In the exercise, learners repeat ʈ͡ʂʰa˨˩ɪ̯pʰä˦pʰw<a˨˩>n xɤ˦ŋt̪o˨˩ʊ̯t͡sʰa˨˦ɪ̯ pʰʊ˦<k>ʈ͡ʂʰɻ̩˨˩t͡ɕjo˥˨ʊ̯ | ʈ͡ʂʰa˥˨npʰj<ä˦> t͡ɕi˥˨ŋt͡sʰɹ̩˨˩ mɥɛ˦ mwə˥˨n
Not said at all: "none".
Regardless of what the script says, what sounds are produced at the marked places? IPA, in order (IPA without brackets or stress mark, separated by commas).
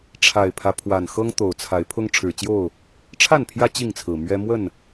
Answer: a˨˩, ŋ, ä˦